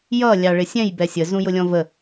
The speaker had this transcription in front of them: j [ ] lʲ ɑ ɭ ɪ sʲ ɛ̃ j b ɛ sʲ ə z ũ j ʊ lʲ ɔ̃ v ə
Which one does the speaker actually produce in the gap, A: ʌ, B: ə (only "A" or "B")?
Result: A